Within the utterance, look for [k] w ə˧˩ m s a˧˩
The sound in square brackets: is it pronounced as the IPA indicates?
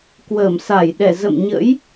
yes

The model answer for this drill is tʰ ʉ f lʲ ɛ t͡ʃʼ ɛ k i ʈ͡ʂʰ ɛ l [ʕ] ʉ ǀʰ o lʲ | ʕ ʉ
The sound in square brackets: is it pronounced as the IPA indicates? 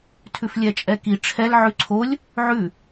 yes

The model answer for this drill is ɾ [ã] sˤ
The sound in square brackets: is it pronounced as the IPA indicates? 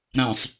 yes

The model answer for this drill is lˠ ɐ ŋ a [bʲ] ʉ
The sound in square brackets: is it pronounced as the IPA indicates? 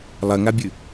yes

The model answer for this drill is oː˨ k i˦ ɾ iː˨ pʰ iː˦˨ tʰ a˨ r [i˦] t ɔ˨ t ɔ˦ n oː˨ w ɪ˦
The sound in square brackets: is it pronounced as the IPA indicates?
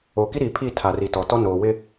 no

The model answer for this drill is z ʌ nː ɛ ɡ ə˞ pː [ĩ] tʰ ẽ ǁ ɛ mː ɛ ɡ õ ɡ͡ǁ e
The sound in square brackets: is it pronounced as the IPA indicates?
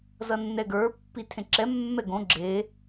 no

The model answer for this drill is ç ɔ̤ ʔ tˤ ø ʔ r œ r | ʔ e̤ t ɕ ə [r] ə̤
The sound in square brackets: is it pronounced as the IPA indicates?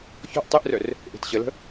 no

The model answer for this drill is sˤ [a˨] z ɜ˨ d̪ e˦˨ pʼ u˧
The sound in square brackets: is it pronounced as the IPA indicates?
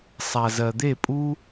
yes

